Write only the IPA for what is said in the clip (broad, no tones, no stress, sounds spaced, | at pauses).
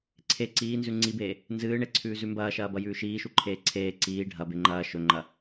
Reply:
ǀʰ e ǀ iː n z ʉ ŋ͡ǀ i b eː | n z ɨː ɳ e ǀʰ ʉː z ʉ m b ɐː ʃ ɐː b ɐ j ʉː ʃ iː ʃ u ǃʰ eː ǀʰ eː ǀ iː ɖʱ ɐ b e ŋ͡ǃ ɐː ʃ ɵ ŋ͡ǃ ɐ